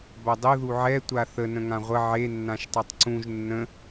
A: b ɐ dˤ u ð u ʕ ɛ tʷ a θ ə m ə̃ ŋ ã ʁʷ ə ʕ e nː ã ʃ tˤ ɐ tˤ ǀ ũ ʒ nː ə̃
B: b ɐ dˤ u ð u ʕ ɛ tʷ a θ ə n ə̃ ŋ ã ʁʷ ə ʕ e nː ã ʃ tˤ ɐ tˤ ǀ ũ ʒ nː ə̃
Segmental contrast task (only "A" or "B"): B